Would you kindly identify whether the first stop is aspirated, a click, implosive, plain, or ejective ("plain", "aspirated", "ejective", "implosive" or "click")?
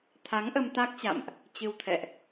aspirated